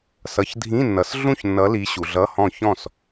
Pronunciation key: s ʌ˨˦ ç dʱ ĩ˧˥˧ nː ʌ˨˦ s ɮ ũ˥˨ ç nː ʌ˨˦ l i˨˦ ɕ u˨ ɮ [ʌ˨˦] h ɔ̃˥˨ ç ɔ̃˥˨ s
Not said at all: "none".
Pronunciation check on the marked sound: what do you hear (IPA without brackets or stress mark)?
ʌ˧˥˧